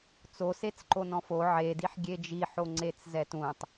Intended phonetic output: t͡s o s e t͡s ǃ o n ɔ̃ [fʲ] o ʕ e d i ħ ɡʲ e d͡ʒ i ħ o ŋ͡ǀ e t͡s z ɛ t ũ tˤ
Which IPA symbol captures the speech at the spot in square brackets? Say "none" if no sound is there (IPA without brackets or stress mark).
f